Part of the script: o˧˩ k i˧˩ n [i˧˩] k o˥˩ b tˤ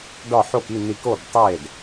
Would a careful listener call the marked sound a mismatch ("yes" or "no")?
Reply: no